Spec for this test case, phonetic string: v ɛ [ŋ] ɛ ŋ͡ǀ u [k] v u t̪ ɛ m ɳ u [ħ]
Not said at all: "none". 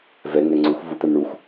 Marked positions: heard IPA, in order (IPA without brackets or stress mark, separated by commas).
ŋ, x, x